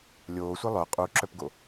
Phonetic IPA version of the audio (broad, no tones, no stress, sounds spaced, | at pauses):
lʲ oː sʷ i lˠ œ qʼ u ǁ œ p ɡ o